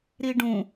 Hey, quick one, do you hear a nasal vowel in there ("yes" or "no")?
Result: yes